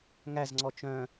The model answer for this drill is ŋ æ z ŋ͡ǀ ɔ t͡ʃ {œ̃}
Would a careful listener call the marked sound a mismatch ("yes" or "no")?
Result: no